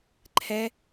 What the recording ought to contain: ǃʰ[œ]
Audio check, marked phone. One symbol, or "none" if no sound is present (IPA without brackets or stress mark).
ɛ